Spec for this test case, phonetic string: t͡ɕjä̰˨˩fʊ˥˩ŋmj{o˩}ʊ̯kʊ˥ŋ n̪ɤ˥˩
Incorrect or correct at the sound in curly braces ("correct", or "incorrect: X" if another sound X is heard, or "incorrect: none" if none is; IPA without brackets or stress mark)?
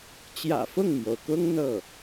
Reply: correct